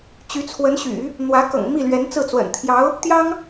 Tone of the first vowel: rising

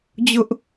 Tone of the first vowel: high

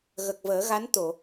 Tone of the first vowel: low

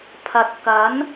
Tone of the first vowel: low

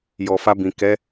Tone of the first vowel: low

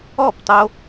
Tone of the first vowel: falling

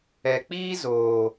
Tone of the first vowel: low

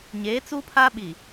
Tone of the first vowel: rising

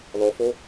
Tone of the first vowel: rising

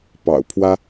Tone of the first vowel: low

